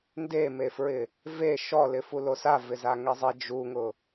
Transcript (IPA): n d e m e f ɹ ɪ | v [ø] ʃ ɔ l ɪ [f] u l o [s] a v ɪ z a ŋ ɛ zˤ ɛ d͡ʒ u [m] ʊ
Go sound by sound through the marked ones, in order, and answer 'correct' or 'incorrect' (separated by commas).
incorrect, correct, correct, incorrect